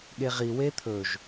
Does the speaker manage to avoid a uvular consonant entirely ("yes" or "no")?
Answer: no